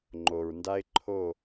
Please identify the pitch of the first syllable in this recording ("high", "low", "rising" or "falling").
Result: low